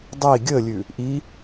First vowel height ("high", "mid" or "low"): high